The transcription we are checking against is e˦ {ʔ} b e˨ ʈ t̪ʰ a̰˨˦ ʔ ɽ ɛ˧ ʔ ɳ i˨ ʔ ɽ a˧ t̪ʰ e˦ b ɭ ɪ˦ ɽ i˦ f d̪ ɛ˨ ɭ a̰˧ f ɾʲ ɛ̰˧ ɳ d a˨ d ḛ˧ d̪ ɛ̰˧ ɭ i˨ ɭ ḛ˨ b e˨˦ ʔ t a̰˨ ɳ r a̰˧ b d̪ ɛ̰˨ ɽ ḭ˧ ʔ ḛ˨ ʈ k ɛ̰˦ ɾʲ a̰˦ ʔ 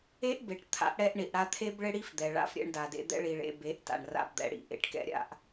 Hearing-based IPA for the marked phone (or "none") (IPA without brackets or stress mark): ʔ